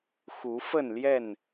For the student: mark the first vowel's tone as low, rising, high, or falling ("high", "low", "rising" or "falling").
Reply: rising